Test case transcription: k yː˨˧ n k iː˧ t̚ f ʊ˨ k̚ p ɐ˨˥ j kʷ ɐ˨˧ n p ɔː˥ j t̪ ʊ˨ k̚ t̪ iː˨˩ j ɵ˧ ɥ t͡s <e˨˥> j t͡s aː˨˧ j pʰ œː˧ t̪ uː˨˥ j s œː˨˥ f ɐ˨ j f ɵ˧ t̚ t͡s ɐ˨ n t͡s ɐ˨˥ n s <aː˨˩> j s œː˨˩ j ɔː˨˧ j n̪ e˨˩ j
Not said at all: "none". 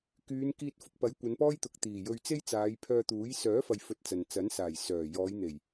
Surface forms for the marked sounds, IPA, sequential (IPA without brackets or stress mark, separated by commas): e˥, aː˨˩